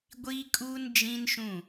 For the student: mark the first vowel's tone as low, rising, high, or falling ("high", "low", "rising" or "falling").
high